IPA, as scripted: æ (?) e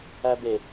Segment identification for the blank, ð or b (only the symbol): b